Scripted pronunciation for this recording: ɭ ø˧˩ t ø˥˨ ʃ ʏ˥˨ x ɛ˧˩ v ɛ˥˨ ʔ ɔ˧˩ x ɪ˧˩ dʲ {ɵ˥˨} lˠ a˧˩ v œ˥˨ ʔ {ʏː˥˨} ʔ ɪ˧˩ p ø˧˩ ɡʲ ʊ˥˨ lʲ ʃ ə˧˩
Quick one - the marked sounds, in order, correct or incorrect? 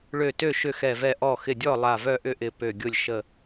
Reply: incorrect: ɔ˥˨, incorrect: ʏ˥˨

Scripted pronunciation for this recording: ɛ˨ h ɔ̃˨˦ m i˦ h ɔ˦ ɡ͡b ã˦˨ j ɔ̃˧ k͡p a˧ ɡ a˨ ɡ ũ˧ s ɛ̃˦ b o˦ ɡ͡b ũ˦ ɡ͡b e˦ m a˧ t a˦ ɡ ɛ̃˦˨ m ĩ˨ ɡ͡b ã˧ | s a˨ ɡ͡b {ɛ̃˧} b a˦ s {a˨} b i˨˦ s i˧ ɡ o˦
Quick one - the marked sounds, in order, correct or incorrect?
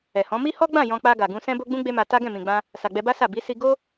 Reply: incorrect: ɛ˧, incorrect: a˦˨

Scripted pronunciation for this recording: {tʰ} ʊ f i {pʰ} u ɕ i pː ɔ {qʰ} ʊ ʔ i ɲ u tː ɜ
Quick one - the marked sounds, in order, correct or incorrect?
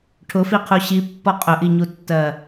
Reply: incorrect: ʈʰ, incorrect: qʰ, incorrect: qʼ

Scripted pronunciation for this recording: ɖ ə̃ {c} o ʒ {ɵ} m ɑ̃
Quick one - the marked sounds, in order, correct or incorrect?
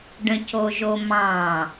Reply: correct, incorrect: o

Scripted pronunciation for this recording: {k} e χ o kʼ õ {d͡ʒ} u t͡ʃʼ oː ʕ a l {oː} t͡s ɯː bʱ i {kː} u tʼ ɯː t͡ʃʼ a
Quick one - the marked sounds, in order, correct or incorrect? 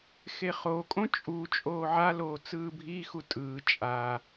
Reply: incorrect: x, incorrect: t͡ʃʼ, correct, incorrect: x

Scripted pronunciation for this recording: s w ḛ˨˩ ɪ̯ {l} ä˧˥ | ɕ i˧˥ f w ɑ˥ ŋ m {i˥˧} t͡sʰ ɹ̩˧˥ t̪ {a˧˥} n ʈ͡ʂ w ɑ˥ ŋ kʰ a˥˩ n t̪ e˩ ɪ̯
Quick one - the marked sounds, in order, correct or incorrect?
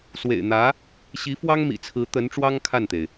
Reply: incorrect: n̪, incorrect: ḭ˨˩, incorrect: ə˧˥

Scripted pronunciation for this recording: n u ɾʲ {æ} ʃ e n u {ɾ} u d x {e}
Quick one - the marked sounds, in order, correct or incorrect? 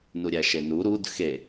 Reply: correct, correct, correct

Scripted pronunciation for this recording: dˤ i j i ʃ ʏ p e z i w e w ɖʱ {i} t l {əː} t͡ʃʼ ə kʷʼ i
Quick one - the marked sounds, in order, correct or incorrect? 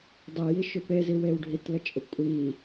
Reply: correct, incorrect: ə

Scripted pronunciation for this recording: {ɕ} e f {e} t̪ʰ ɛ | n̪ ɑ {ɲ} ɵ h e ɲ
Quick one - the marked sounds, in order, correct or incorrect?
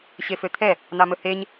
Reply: correct, incorrect: ø, incorrect: m

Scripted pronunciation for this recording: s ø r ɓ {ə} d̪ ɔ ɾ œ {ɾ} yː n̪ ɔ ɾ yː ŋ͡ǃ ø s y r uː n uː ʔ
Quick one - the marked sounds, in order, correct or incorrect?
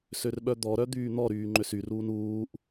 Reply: incorrect: œ, incorrect: d̪

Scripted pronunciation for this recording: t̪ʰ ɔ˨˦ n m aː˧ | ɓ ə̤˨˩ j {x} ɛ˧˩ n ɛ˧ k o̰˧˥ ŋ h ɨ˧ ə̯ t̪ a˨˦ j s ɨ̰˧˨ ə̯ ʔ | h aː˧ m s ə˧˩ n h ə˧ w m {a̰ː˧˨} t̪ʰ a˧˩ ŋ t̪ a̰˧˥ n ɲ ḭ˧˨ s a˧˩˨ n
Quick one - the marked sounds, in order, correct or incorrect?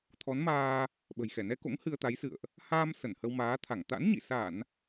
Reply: correct, incorrect: aː˨˦

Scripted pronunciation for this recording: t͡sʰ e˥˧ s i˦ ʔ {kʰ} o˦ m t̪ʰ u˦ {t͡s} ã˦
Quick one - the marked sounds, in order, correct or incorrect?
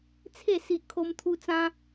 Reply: correct, correct

